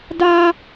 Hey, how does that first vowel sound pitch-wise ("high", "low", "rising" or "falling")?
high